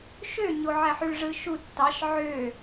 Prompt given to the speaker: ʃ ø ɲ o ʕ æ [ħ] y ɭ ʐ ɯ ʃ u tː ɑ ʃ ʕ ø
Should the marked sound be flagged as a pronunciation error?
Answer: no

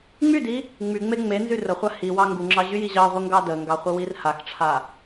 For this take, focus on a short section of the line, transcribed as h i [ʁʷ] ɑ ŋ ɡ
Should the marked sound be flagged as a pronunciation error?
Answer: yes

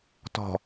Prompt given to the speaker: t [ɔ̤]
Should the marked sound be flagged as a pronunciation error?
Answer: no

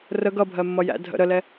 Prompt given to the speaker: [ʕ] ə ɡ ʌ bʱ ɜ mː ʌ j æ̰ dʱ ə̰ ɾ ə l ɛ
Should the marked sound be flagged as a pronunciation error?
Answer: yes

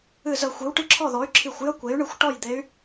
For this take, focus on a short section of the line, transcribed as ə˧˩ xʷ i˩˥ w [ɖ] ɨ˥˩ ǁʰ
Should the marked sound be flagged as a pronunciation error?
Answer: yes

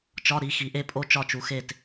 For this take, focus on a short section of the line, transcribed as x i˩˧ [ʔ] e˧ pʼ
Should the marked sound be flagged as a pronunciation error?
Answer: no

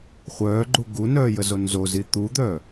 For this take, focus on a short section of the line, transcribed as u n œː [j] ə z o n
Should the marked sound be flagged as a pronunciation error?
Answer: no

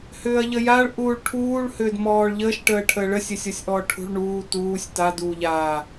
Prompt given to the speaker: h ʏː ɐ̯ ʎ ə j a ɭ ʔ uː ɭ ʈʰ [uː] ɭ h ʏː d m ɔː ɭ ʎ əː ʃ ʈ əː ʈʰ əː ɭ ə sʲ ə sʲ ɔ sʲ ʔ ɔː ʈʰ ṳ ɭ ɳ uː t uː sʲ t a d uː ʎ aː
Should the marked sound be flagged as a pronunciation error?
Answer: no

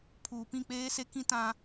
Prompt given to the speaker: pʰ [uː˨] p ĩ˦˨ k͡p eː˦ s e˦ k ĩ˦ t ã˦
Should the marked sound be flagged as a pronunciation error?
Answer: no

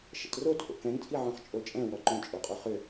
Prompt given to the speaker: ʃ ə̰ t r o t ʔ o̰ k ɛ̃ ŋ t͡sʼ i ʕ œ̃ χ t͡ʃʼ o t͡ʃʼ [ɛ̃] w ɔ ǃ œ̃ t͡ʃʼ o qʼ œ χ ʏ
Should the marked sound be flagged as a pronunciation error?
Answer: no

